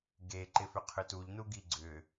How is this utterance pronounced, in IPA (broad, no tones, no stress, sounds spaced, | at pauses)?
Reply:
ɡ e ǃ ɪ f ʏ qʰ ʏ t u ʎ n u ɡ i ɡ͡ǀ ʏ